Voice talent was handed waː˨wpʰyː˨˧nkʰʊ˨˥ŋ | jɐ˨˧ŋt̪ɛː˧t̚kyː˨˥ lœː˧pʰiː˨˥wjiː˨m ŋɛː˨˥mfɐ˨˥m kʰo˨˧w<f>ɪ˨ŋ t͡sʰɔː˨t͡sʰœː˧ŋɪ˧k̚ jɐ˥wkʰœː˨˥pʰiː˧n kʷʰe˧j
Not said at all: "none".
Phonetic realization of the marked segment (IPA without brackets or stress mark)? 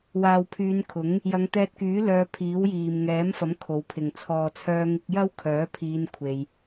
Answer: pʰ